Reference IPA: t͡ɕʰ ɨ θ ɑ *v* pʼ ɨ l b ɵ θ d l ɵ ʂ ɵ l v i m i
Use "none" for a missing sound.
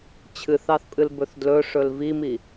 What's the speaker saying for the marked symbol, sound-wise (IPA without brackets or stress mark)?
θ